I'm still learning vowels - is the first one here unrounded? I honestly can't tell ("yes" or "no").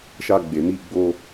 yes